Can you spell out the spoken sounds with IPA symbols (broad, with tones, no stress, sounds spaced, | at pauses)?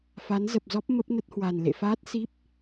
f a˨˦ n z ə˨˩ p̚ z ɔ˦˥ p̚ m ə˦˥ p̚ n ə˦˥ t̚ h w a˨˩ n l ḛ˧˨ f aː˦˥ t̚ s i˦˥ p̚